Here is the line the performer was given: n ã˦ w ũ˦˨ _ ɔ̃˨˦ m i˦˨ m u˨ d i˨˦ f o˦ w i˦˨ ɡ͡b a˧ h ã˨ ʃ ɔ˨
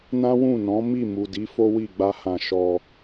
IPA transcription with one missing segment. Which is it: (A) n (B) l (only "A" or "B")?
A